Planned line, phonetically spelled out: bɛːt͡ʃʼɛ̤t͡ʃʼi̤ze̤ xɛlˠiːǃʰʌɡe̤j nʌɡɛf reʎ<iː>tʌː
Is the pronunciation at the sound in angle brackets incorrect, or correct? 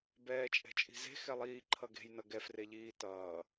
correct